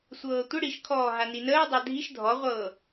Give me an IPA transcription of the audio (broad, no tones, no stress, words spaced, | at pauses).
sʷɤːtʷə ɽiʃkʰɔː ɦaninəː dˤadʱiʃ dʱɔʁʷɤː